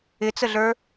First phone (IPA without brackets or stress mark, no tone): ɪ